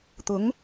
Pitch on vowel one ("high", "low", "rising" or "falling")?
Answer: rising